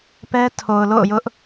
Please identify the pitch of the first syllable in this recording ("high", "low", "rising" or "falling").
high